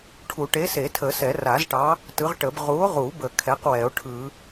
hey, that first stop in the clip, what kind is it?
aspirated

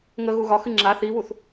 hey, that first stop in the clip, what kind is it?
click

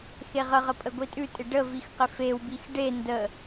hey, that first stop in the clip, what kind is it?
ejective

